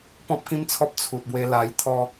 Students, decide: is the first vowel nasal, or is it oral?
nasal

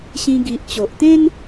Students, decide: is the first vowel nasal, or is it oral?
nasal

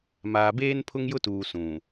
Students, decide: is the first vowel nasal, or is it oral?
oral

